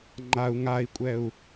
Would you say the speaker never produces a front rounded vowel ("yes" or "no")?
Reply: yes